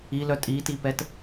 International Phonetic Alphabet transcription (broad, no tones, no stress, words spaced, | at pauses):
ilœ tʼitipɛt